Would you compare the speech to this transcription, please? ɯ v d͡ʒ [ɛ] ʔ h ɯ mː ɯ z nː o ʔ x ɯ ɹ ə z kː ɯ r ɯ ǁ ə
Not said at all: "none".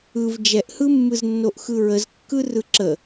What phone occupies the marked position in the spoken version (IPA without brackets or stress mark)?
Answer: ɛ